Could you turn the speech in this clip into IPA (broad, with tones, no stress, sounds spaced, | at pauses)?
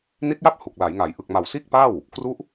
n i˦˥ t̚ j a˥˩ p̚ h u˨˩ k̚ l a˩˦ j ŋ a˩˦ j ʔ ɯ˨˩ k̚ m a˨˩ w s iː˥˩ k̚ p a˥˩ w | k r u˦˥ ʔ